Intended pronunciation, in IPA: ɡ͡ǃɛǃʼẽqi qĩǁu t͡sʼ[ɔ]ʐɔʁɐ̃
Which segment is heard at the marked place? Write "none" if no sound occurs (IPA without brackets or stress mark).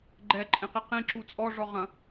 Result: ɔ